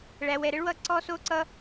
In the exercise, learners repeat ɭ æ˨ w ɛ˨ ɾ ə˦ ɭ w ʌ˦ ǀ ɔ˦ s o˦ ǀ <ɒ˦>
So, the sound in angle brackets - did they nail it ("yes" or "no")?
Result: no